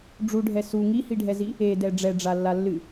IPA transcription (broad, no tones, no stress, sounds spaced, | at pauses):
ɖ͡ʐ u ɖʱ ɛ s u ŋ i h i ɖʱ ɛ z i | e d ɛ ɖ͡ʐ ɛ ɖ͡ʐ a lː a lː ɨ